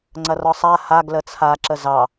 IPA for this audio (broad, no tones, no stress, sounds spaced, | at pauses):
ŋ͡ǀ ɐ r ɒ sˤ a h a ɡ l ə t͡sʰ a ǁ ə z ɑ